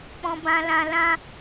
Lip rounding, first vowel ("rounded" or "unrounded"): rounded